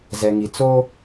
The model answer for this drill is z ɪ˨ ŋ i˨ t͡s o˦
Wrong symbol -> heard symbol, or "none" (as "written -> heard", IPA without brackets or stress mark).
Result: ɪ˨ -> ɛ˨